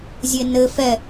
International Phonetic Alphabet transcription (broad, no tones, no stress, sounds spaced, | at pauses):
zʲ e n ɘ f ɛ